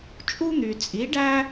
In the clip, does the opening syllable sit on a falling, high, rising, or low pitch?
high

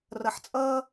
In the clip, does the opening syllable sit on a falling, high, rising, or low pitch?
low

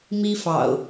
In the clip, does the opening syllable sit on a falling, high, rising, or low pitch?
high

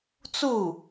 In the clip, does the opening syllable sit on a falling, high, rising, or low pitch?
falling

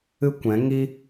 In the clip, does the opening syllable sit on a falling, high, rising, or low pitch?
high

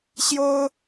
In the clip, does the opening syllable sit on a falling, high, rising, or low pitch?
high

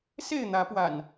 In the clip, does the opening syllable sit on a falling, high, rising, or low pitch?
falling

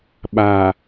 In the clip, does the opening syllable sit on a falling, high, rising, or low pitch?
low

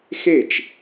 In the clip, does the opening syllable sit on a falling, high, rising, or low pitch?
falling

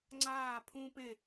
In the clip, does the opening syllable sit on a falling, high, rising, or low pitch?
falling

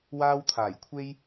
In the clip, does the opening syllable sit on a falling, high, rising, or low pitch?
high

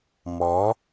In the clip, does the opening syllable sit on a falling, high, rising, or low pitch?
rising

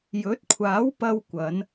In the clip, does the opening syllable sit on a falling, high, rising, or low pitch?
rising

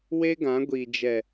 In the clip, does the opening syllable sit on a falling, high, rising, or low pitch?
high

